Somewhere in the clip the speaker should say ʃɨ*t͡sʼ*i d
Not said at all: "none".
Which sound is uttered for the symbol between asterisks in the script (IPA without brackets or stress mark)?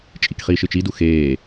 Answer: t͡ʃ